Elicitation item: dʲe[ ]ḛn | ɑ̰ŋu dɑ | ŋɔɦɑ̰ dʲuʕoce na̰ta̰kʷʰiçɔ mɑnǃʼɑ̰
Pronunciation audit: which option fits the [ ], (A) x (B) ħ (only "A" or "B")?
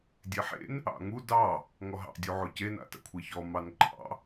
B